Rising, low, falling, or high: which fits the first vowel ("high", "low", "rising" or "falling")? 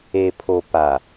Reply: low